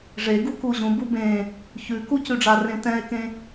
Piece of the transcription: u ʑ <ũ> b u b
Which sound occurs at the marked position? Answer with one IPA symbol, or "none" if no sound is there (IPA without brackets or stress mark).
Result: ũ